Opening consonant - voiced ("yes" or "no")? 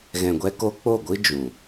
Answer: yes